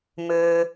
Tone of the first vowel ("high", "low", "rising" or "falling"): low